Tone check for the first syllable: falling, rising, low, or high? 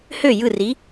falling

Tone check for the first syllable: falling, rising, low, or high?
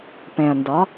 low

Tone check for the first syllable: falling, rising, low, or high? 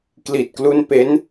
low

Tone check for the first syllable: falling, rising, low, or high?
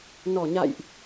low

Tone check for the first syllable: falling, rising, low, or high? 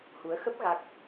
rising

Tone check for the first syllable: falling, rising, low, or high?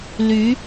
rising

